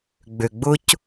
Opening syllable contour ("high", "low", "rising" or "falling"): low